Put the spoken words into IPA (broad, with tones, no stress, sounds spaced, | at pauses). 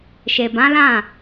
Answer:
ʃ e˨ b ã˨˦ l ã˦˨